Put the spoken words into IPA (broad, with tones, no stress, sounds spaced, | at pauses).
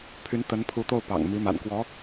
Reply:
pʰ y˧˥ n t̪ ə˧˥ n pʰ u˧˥ t̪ o˥˩ ʊ̯ p ɑ̰˨˩ ŋ m i˧˥ m a̰˨˩ n k w ɔ˧˥